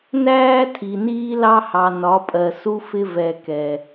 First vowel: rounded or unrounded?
unrounded